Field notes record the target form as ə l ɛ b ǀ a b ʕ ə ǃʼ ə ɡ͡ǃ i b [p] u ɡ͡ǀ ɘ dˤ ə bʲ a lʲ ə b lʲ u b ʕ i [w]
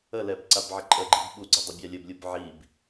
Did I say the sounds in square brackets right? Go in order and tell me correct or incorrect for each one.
incorrect, incorrect

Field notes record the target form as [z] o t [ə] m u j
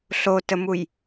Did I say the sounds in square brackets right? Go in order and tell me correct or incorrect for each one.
incorrect, correct

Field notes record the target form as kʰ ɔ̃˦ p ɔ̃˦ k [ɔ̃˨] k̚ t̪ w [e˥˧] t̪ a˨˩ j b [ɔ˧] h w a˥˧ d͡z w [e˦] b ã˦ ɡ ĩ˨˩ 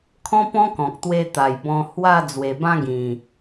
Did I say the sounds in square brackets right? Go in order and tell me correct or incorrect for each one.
correct, incorrect, incorrect, incorrect

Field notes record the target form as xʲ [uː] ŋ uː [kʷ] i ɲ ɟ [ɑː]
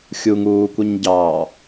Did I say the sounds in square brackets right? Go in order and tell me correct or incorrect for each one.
incorrect, correct, correct

